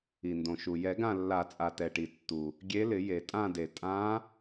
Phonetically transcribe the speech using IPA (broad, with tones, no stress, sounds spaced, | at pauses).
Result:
i˩ n d õ˩ ʃ u˩ j ɛ˨˩˦ ɡ ã˦˨ lː a˨˩˦ t͡sʼ a˩ t ɛ˩ ʈ i˩ tː u˩ | ɡʲ e˧˥ l ɪ˨˩˦ j e˩ tʼ ã˦˨ d e˩ tʼ ã˧˥